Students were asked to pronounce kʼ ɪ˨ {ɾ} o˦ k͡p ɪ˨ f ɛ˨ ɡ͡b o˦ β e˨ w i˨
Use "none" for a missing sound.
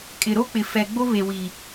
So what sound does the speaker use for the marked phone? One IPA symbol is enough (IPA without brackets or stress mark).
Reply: ɾ